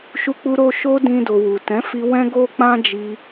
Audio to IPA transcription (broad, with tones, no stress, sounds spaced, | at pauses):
ʃ u˧ k͡p u˧ ɾ o˧ ʃ o˦ d ĩ˧ d o˨ w u˨ t ɛ̃˨˦ f i˧ w ɛ̃˦ ɡ o˦ k͡p ã˦ d͡ʒ i˧